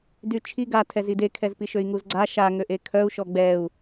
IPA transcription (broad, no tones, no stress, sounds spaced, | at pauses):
d y t͡ʃʰ i ɡ a tʰ ɛ z i d e kʰ ɛ z p i ʃ ø i̯ ŋ u z ɡ͡ǀ a ʃ a ŋ ø ʔ e kʰ œ u̯ ʃ ɔ ɡ͡b ɛ u̯